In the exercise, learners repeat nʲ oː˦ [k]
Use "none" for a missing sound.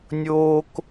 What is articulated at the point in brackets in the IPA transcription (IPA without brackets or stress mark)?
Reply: k